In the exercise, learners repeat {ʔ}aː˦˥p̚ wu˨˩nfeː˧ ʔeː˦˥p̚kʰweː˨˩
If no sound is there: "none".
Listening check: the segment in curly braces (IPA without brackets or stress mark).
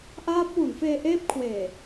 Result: ʔ